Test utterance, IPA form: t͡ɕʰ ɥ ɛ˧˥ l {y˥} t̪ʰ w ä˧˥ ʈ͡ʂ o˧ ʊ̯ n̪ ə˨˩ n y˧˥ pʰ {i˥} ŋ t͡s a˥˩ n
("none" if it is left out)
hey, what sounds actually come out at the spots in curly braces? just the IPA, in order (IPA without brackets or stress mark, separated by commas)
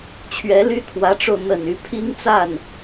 y˥, i˥